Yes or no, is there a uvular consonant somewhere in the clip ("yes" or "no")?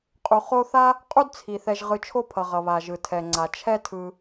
yes